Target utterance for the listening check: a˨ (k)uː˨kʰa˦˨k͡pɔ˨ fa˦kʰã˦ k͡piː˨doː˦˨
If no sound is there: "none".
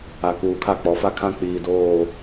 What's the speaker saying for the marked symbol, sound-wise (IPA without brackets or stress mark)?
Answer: k